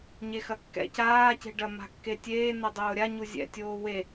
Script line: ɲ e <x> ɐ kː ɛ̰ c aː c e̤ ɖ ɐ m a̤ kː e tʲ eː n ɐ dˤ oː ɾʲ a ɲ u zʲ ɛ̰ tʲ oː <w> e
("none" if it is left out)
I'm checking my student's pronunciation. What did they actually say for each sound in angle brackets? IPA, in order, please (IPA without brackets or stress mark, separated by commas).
x, w